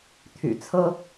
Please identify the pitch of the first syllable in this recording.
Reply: low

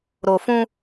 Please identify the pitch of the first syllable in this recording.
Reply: low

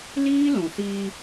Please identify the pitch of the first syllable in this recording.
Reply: high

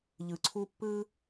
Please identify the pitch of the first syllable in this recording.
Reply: low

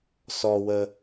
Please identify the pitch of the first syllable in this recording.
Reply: low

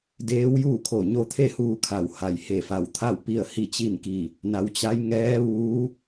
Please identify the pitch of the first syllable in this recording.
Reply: rising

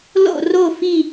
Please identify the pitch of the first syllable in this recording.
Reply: falling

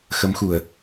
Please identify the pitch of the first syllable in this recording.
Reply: rising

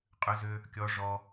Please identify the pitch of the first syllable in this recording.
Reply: high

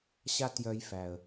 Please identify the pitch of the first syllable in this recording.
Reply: high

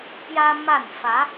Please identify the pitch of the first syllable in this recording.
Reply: high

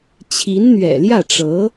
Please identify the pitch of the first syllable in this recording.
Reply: rising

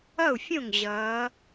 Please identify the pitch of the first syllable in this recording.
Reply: falling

